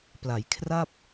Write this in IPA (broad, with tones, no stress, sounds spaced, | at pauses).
p l a˩˦ j kʰ r a˥˩ p̚